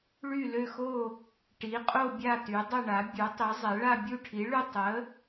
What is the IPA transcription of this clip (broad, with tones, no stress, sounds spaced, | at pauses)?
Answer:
ɭ y˥˧ l ø˥˧ x o˥˧ | ʈ i˨˥ qʼ o˥˧ bʲ a˥˧ t y˨˥ dˤ ə˥˧ ɳ a˨˥ bʲ u˨˥ tˤ i˨˥ zˤ ɛ˨˥ ɭ a˥˧ bʲ u˥˧ ʈʰ i˨˥ ɭ y˥˧ tˤ ə˨˥